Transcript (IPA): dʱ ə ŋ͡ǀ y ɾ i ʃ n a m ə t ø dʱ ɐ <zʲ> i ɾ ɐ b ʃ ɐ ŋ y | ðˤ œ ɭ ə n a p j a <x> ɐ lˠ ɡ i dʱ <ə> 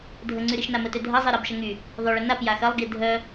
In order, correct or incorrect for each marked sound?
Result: incorrect: zˤ, correct, incorrect: œ

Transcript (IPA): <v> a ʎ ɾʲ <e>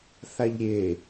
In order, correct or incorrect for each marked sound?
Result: incorrect: θ, correct

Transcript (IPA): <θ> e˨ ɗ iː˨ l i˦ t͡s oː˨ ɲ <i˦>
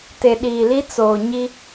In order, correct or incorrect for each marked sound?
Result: incorrect: t, correct

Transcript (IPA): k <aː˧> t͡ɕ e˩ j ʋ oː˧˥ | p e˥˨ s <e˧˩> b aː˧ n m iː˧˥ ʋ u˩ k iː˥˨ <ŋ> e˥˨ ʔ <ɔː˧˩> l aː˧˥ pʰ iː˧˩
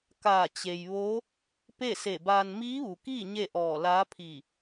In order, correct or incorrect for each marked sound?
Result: incorrect: aː˧˩, correct, incorrect: ɲ, correct

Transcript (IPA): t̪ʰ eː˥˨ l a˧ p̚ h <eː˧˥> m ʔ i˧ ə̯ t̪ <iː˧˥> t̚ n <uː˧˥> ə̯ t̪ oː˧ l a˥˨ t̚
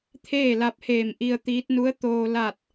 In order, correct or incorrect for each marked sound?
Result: incorrect: eː˧˩, correct, incorrect: u˧˥

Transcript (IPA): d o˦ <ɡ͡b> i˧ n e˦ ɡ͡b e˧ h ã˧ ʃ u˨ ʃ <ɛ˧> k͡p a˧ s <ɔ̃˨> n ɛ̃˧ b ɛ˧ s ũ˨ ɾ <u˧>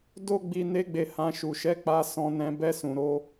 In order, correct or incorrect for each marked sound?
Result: correct, correct, incorrect: ɔ̃˧, incorrect: o˧

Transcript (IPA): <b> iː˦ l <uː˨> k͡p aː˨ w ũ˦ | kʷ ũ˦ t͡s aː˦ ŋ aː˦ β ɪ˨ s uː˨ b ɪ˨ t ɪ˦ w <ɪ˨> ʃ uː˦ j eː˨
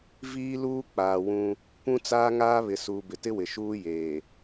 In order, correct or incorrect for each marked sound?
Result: incorrect: v, incorrect: uː˦, correct

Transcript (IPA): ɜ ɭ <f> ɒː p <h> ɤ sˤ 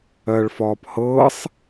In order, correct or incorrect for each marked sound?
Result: correct, correct

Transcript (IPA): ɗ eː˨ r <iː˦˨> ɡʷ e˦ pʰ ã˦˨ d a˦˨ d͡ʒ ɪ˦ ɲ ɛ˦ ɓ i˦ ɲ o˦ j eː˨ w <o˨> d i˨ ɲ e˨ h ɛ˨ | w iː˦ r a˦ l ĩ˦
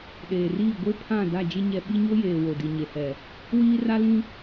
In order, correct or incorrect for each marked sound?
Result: correct, correct

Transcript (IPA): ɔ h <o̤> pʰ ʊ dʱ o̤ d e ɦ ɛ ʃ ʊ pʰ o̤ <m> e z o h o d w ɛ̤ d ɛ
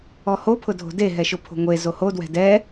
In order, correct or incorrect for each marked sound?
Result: incorrect: o, incorrect: ŋʷ

